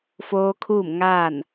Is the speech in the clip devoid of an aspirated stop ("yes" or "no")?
no